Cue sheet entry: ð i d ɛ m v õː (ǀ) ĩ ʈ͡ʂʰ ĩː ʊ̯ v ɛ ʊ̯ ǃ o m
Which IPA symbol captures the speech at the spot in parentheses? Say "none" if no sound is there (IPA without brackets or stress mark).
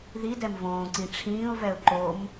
ǀ